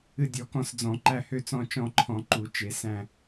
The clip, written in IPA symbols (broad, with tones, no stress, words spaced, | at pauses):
ɨ˦˨dʲɔ˧˩˧kɔ̃˦˨sd͡zɔ̃˧˩˧ ǃæ˦˨hø˦˨t͡sɔ̃˦˨ t͡ʃɔ̃˦˨ǃʰɔ̃˧˩˧ǃu˧˩˧ t͡ʃe˧˩˧sæ̃˦˨